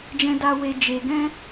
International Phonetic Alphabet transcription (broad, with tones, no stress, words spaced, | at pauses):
d͡ʒɛ̃˦da˦ we˦ d͡ʒe˧ ɡɛ̃˦